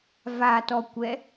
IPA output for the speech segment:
v a t ɔ kʷ ɛ

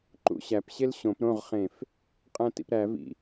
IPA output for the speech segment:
ǃ ṵ ɕ æ p ɕ e l ɕ õ p ɾ õ ʁ χ ẽ f | qʼ æ̃ t ḭ p ɾ æ v ḭ

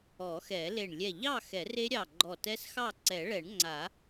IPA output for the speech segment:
ɔ˨˩˦ x ɛ˨˩˦ l e˧˩ ɳ lʲ ɛ˧˩ ʎ ɑ˥˨ x ɛ˨˩˦ r e˦˥ ɾʲ ɑ˧˩ ɡ͡ǃ ɔ˧˩ t ɛ˦˥ s x ɑ˥˨ ǀ ɛ˨˩˦ ɭ ɛ˨˩˦ ɳ ŋ͡ǀ a˨˩˦

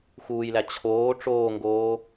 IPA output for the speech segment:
x uː j l æ t͡ɕʰ oː ʈ͡ʂ oː ŋ ɡ oː

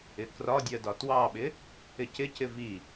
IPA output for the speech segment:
ɪ k r ɒ dʲ ɜ d ɒ t w ɑ ɓ ɪ | ɪ c ɪ c ɪ v i

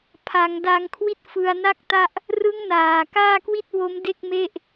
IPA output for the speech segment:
pʰ a˩˦ ŋ d a˧ ŋ kʰ w i˥˩ t̚ f ɯ˧ a̯ n a˥˩ k̚ t a˥˩ ʔ | r ɯ˦˥ ŋ n aː˨˩ k aː˥˩ k w i˥˩ t̚ w o˦˥ m d e˥˩ k̚ m e˥˩ ʔ

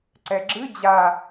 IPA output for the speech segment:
ǀ ɛ ɡ͡ǁ ɨ d͡ʑ a

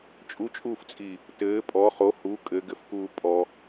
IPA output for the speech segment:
t͡ʃʼ u t͡ʃʼ uː f t͡sʼ iː | t ɘː pʼ ɔ χ o h u kʼ ɘ ɡ ɘ f k uː pʼ ɔ

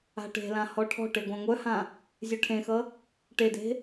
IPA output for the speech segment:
a̤ ʈ e̤ l ã h ɔ ʈʰ ɔ̤ ʈ e ɡʷ ã ŋʷ œ h ã | zʲ œ ʈʰ ẽ x ʌ | ʈ e d e̤

